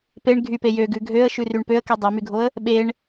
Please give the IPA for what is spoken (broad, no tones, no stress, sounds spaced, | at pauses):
p e ɳ ɡʱ y p e j ø ɡ ʉ ɡʱ ø ə̯ ʃ ʉ r y ɳ p ø ə̯ k y dˤ e m y ɡʱ o ə̯ | ɓ e ɳ